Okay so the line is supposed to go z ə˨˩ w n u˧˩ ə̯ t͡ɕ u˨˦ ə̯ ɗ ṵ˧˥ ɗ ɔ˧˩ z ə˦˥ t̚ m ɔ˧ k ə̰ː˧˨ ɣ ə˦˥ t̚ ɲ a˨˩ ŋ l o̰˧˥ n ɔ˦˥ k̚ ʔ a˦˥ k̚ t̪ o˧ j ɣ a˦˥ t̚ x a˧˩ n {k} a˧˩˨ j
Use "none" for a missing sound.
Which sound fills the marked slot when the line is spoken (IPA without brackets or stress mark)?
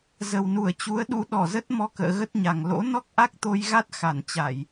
t͡ɕ